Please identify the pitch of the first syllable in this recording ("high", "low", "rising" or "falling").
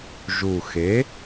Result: low